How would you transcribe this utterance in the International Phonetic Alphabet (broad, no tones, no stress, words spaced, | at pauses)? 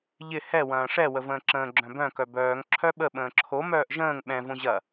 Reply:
ʎɪ hɛ wɐ̃ːʂɛ wəvə̃ːǁə̃ː ɡ͡ǁœ̃bœ̃ kœbœːŋ ǁʰœɓə ɓə̃ːǁʰo mœːʔʒə̃ːŋ ɓɛ̃ võʑɐ